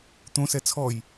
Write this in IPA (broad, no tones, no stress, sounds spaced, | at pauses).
t̪ õ s ɛ t͡sʰ ɔ j